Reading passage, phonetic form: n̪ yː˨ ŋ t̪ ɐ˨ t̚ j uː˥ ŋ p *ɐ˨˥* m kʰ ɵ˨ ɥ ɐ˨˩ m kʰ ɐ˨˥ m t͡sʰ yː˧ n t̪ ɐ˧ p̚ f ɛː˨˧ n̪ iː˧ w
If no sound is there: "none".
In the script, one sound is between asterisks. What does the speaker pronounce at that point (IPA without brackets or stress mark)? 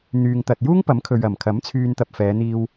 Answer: ɐ˨˥